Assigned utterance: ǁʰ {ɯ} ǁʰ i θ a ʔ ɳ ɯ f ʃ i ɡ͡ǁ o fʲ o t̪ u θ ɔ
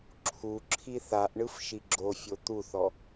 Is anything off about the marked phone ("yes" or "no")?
yes